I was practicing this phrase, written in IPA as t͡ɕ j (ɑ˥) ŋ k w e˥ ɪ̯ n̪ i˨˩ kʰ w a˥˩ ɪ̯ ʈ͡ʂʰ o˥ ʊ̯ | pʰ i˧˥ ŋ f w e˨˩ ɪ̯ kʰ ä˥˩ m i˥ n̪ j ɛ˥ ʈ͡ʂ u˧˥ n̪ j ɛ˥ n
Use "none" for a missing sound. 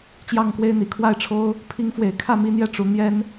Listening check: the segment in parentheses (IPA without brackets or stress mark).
ɑ˥˩